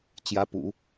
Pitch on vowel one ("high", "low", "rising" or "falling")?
rising